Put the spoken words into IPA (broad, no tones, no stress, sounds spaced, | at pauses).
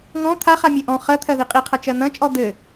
ŋ ɔ̃ t̪ʰ a χ a mʲ ɘ ʔ ɔ̃ χ ɜ t̪ʰ ɜ ð i qʼ i qʰ ʌ t͡ʃ ɜ n̪ ɐ̃ t͡ʃʼ ɔ d̪ ɘ